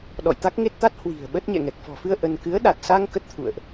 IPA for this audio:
ɗ ɔ̰˧˨ j t̪ a˦˥ k̚ ŋ e˦˥ t̚ t̪ a˦˥ t̚ h w i̤˨˩ ə̯ ɓ ə˦˥ t̚ ɲ ɛ̰˧˨ ŋ ɛ˨˩ k̚ f ɔ̤˨˩ f ɨ˧ ə̯ ʔ ə˧ n k ɨ˨˦ ə̯ ɗ a˨˩ t̚ s a˧ ŋ k ə˦˥ t̚ t̪ʰ ṵ˧˨ ə̯ ʔ

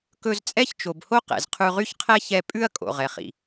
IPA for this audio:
k ɵ˧ z t͡sʼ ɛ˥ ç t͡ʃ o˩ b h o˥ q ɛ̰˩ z qʰ ʉ˧ ʁ y˥ ç qʰ ɛ˥ ç ɛ˧ pʼ ʉ˥ ɐ̯ kʼ o̰˩ ʁ ɛ˩ χ ḭ˩

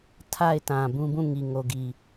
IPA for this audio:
tʰ a˦˨ ɪ̯ t ã˨ b ũ˦ b ũ˦˨ ŋ i˨ ŋ o˨ ɡ i˨

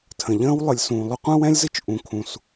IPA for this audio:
tʰ ə̃˩ ʎ ə̃ː˥ w lˠ ɨ˩ lʲ s ũː˩ lˠ ɵ˥ qʷ ə̃ː˥ w ɛ̃˥ lʲ z ɨ˥ t͡ʃ ʔ ũ˩ kʰ ũ˩ s

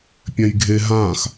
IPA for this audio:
pʲ ɛ̃ j ɡʱ e ɦ ã x

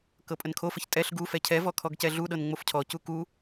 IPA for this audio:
k ɤ pʼ ə n kʰ o f ə ç tʼ ɛ ɬ ɡ u f ɛ cʰ ɛ v ɔ kʰ ɔ ɡ c ɛ ɮ u ɗ ɤ n ŋ͡m o f cʰ ɔ c u k u

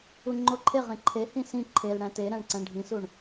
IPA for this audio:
u ŋ͡ǃ o ǃʰ e ʁ ẽ ǃʰ e h ĩ s ĩ ǃʰ e l ɽ æ̃ t e ɾ æ̃ ɳ ǀ æ̃ ɳ ɖʱ ĩ s u ɳ

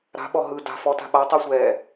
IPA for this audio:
ɾ a̤ ɓ ɔ ɦ ɯ d a̤ f ɔ t a̤ ɓ a tˤ i sʷ ɛː

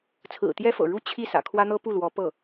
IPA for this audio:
t͡sʰ ɹ̩˨˩ t̪ j ɛ˥ f ɤ̰˨˩ ɻ u˥˧ t͡ɕʰ i˥˩ s ä̰˨˩ kʰ w ä˥ n̪ ɤ˥ p u˥˩ l w ɔ˧˥ p ɤ˥˩

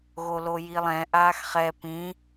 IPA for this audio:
ɣ o l o j i lˠ ɛ̃ ʔ aː x χ ɛ p ĩ

